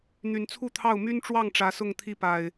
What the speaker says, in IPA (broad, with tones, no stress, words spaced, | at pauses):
n̪y˨˩nt͡sʰu˥˨t̪ʰɑ˥˨ʊ̯ my˦nʈ͡ʂwɑ˥˨ŋ ʈ͡ʂä˨˦sʊ˥˨ŋt̪ʰi˦pa˨˩ɪ̯